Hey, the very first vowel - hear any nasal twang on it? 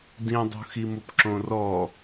yes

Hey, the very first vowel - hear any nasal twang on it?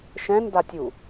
yes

